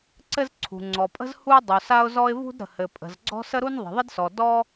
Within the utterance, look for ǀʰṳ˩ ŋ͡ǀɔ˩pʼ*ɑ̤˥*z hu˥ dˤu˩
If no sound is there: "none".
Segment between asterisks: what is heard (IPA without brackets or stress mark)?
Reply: ə̤˥